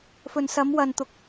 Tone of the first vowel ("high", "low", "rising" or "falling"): low